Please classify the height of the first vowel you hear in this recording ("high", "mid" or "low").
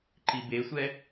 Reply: high